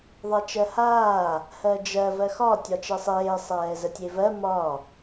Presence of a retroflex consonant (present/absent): absent